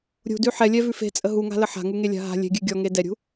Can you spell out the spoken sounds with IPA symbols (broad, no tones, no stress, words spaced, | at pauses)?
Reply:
ɾʲṳdʉ ħɛlʲɛvʉ fe̤t͡sʼə ɦuŋa̤lə ħa̤ŋuŋelʲa̤ ɦa̤ lʲe̤ɡʲʉ ɡʲɔŋe dɛɾʲṳ